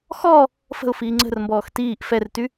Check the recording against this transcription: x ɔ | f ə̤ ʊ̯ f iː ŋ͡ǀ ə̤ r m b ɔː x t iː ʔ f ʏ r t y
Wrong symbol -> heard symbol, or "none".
ʏ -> ɛ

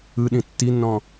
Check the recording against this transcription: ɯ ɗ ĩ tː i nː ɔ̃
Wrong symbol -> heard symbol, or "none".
none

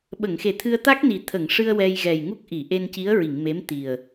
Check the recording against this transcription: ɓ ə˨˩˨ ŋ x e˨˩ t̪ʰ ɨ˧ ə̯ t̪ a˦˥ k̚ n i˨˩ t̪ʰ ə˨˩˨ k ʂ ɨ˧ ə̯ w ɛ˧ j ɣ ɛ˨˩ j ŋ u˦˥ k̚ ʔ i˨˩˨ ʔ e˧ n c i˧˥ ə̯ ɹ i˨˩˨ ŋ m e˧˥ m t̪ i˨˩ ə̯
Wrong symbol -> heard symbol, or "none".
k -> ŋ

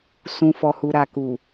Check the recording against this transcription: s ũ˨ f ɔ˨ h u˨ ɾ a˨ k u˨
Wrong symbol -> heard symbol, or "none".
none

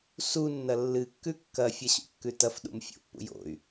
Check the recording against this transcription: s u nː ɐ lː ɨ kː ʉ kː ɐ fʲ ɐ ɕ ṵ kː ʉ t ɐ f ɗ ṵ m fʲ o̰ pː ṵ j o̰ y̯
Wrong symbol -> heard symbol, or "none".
none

